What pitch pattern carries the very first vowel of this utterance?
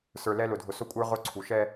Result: low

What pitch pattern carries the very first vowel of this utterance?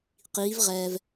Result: rising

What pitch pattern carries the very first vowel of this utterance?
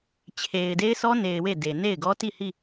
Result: low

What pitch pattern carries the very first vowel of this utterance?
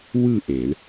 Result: falling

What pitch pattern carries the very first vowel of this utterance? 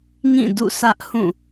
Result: falling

